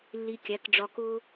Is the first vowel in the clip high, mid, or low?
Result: high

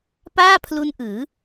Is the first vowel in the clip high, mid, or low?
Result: low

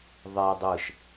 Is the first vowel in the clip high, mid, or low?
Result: mid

